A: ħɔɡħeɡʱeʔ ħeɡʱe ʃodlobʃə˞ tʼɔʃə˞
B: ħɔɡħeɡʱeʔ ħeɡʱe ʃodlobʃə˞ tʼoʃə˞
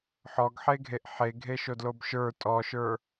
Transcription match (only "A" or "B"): A